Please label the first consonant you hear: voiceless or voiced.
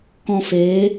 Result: voiceless